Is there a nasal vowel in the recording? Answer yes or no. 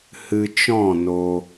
yes